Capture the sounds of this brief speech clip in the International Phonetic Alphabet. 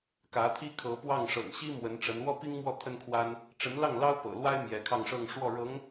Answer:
k ä˧˥ t̪ʰ i˥ kʰ ɤ˧˥ p w ɑ˥˩ ŋ ʂ ɤ̰˨˩ ŋ ɕ i˥ m w ə˧˥ n ʈ͡ʂ ə˧˥ n w ɔ˥ p i˥ ŋ m w ɔ˥˩ t̪ʰ ə˥ n kʰ w a˥ n | ʈ͡ʂ ə˧˥ n l ɑ˥˩ ŋ l ɑ˥ ʊ̯ p ɤ̰˨˩ l w a˥ ɪ̯ m j ɛ˧˥ kʰ ɑ˥˧ ŋ ʂ ɤ˥˧ ŋ ʂ w ɔ˥˩ ɻ ɤ˧˥ ŋ

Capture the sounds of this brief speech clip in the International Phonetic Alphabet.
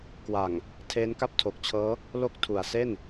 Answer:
k w a˨˩ ŋ | tʰ eː˦˥ n k a˥˩ p̚ tʰ o˨˩ k̚ t͡ɕʰ ɤː˦˥ | l o˥˩ k̚ tʰ u˨˩ a̯ s e˥˩ n

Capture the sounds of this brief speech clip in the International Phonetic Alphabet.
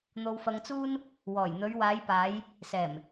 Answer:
n̪ o˧ w f ɐ˧ ŋ t͡s uː˥ n | w ɔː˨˩ j n̪ ɵ˨˧ ɥ w aː˨˧ j p aː˨˧ j | s ɛː˨˩ m

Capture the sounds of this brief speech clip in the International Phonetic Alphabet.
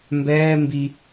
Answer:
m b ɛː m b i

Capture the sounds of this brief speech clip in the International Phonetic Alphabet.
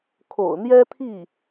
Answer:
kʰ o̰˨˩ ʊ̯ n̪ j ɛ˥ t̪ʰ i˥˩

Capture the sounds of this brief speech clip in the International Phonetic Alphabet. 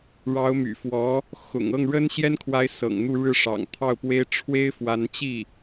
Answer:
ɻ ɑ˧˥ ʊ̯ m y̰˨˩ f w ɔ˧˥ | x ʊ̰˨˩ ŋ ɤ˥˩ ŋ ɻ ə˥ n ɕ j ɛ˥ n kʰ w a˧˥ ɪ̯ s ɤ̰˨˩ ŋ n̪ u˥˧ ɻ ɻ̩˥˩ ʂ ɑ̰˨˩ ŋ t̪ʰ ɑ˥˩ ʊ̯ p w e˥ ɪ̯ ʈ͡ʂʰ w e˥ ɪ̯ f w a˧˥ n t͡ɕ i˥˩

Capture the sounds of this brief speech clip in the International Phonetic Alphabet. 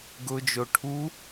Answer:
ɡ ʊ d͡ʒ o ʈʰ u

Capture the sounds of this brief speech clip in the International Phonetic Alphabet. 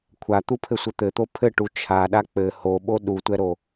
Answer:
kʷʰ a t̪ u pʰ ɘ sʷ ɘ t̪ ɘ t̪ o pʰ ɘ ʈ u t͡ʃʰ a ɗ a k͡p ɘ h o ɓ o ɗ u tʷ ɛ ɾ o

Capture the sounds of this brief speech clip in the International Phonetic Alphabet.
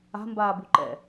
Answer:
a̤ m b aː b u ǃ ɛ̰

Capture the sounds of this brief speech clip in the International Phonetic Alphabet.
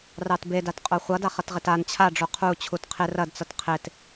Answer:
r ɑ t b e d a t qʼ o χʷ ʌ d a χ ʌ t ʁ ɪ t a n t͡ɕʰ a ɖ͡ʐ o qʰ u t͡ɕʰ u t qʰ ɪ r ɐ d t͡s ʌ t qʰ ɪ t

